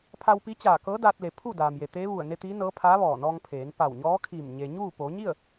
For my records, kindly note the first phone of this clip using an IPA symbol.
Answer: pʰ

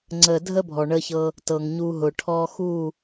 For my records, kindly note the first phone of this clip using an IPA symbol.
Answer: ŋ͡ǀ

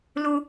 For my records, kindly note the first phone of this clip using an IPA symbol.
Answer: l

